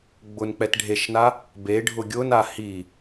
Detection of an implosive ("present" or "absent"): absent